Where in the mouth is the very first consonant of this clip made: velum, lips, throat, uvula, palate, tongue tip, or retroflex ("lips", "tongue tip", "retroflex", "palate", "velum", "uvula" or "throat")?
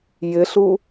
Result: palate